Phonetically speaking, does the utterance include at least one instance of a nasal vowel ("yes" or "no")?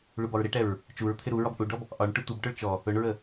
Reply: no